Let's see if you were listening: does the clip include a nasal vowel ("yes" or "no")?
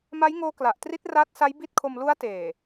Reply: no